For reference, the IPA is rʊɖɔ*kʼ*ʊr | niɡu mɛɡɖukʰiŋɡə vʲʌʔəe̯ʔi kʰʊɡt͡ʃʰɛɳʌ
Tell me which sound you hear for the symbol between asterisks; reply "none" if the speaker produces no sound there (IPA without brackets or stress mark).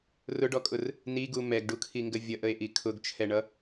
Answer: kʼ